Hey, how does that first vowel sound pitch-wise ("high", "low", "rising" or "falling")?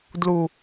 low